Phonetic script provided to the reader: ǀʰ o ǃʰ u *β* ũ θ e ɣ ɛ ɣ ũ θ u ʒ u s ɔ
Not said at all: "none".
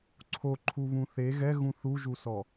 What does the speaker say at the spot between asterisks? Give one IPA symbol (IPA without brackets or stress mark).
β